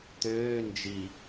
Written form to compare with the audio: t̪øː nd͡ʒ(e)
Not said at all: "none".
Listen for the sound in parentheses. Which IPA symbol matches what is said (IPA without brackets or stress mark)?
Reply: i